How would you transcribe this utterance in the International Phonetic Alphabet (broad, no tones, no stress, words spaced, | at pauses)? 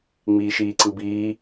ŋ͡miːʃiːǀɯbiː